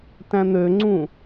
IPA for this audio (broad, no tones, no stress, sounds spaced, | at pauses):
t æ̃ n̪ ø ŋ͡ǀ ũ